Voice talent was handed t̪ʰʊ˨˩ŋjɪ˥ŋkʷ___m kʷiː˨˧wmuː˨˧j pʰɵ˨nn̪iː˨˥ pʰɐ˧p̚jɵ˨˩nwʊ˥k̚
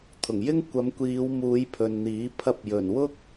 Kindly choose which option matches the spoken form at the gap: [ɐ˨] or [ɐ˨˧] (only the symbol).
ɐ˨˧